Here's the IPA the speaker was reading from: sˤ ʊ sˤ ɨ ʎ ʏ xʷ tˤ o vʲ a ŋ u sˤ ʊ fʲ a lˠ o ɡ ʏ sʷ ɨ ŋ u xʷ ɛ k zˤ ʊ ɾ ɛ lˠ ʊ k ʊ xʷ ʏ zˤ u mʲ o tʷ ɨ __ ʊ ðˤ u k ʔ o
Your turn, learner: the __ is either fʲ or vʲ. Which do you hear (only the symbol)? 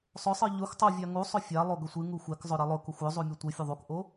fʲ